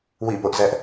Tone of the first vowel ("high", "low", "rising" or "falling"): falling